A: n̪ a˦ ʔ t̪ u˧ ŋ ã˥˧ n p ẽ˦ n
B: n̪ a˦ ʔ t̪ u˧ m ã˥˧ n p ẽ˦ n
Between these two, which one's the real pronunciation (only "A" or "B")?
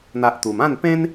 B